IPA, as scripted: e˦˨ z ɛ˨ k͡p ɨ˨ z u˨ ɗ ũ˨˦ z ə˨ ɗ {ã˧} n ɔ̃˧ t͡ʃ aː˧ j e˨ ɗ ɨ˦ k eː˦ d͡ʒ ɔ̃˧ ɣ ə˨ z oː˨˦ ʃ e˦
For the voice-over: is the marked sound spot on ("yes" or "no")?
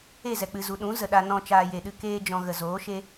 no